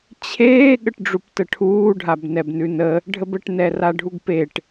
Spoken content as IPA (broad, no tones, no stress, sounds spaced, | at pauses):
t͡ɕʰ eː ɠ ə ʈ ɖ͡ʐ u p t ə ʈʰ uː ɖʱ a b n ɛ b n ʉ n ə | ɖʱ ə b ə ʈ n ɛ r a ɖʱ u ɡ p e ʈ